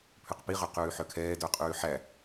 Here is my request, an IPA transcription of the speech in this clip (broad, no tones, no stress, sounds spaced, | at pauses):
pʰ ʉ q p i ʁ ø q ʉː ħ œ kʰ ɛː d œ qʼ ʉː ħ æ